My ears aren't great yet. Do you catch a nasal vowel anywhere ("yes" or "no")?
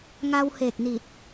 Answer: no